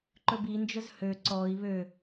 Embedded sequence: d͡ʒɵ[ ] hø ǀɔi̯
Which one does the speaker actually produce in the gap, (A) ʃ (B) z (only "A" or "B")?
B